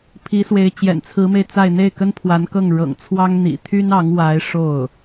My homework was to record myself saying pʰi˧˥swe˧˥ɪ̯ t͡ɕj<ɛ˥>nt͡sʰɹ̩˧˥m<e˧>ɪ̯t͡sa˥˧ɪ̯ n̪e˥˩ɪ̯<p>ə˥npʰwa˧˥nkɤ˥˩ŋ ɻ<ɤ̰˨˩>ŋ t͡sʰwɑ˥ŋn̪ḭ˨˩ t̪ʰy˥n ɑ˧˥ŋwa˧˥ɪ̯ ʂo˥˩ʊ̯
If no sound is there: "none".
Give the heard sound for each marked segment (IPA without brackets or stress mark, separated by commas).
ɛ̰˨˩, e˧, k, ɤ̰˨˩